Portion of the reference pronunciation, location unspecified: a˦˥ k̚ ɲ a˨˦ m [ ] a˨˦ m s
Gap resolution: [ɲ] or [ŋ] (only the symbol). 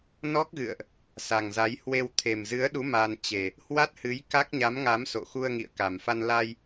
ŋ